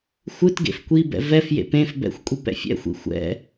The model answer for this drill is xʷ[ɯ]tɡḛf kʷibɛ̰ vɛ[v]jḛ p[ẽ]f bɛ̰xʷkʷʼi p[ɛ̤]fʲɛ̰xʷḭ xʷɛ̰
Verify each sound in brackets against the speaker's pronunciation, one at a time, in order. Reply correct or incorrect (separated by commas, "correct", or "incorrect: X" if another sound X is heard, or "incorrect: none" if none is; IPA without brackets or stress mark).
correct, incorrect: f, correct, incorrect: ɛ̰